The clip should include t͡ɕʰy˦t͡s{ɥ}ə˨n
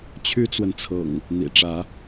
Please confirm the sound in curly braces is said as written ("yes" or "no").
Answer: no